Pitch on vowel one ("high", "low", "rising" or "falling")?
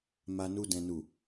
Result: low